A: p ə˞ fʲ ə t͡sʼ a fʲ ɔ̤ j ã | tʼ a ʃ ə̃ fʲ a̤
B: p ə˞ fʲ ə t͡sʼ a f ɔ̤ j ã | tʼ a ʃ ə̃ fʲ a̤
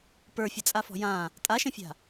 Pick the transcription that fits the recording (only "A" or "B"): B